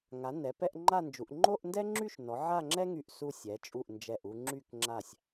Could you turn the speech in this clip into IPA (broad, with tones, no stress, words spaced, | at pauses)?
ŋa˩˧ nɛ˩˧pɛ˥˧ʔŋ͡ǃa˥˧nd͡ʒu˩˧ʔ ŋ͡ǃo˥˧ʔndɛ˥ŋ͡ǁy˥˧ʃnɔ˩˧ ʕa˥˧ŋ͡ǁɛ˥ŋy˧˩ʔ su˧sʲ ɛ˩˧t͡ʃʼu˧˩ʔ nd͡ʒɛ˧˩ʔu˧ŋ͡ǁy˥˧k ŋ͡ǁa˧˩sʲ